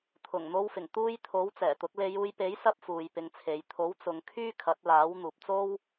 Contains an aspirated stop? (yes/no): yes